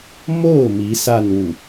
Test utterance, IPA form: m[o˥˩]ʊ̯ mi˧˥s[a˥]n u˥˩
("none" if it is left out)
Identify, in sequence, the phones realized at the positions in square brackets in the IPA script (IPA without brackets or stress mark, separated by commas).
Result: o˥˩, a˥˧